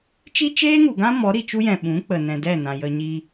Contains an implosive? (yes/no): yes